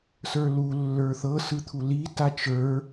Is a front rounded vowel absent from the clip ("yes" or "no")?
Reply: yes